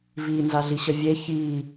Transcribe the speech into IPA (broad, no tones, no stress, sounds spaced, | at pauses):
v i n z a ɮ i ɕ ə vʲ e ç i